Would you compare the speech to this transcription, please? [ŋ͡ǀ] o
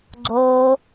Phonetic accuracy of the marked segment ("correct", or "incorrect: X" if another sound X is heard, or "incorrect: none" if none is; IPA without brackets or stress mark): incorrect: ɡ͡ǀ